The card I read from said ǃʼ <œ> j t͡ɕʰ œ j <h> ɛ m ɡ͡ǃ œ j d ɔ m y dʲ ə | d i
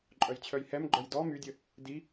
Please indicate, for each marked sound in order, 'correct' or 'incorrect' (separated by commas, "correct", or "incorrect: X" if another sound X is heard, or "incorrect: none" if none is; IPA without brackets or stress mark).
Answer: correct, correct